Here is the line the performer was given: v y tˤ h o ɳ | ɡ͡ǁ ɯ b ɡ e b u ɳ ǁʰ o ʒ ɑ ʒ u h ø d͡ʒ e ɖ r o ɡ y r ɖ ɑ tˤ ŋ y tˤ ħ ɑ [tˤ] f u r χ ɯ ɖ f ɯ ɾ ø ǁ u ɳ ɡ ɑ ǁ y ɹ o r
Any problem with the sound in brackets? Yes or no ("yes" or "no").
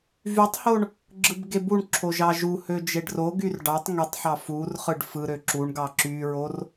yes